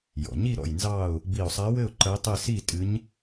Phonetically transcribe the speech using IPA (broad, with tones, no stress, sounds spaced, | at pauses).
j ɔ̰˩ ɲ i˥˨ ɾ ɔ̰˧˩ j n z ɑ˥˨ ʊ̯ | b i˧˩ ʊ̯ sˤ a˧˥ w ɘ˥˨ ʊ̯ ǃ ə˧˥ ɪ̯ tˤ ɘ˥˨ s i˥˨ tʼ ɨ˧˥ ɲ